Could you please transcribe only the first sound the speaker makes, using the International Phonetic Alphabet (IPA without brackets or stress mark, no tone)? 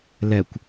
l